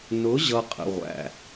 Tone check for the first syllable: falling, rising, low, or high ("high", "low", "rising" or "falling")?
rising